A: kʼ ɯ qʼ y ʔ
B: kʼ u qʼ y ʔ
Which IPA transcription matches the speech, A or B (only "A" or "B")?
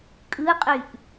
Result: A